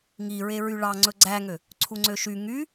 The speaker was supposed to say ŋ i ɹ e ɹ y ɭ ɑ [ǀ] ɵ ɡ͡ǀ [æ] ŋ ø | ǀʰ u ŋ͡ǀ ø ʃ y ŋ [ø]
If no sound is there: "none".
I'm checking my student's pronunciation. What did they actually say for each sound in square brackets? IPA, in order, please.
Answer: ŋ͡ǀ, æ, y

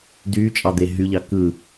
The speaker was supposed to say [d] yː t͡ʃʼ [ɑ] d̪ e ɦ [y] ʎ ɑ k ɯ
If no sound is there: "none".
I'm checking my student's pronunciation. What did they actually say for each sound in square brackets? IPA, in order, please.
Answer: d, ɑ, y

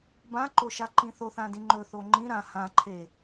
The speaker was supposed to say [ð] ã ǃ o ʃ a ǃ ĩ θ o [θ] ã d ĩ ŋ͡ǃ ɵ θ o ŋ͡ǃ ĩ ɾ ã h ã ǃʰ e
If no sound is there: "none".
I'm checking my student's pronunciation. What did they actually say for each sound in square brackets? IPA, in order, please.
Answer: b, θ

